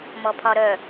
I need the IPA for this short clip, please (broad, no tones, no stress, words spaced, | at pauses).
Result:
mɔpʰɒɾœ